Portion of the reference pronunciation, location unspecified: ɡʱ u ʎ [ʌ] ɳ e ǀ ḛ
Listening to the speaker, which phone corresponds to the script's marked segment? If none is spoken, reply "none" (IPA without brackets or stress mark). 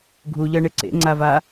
ʌ